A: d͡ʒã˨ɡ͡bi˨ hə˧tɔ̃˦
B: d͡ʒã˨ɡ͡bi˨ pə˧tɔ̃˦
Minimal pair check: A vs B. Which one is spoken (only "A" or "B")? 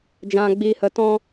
A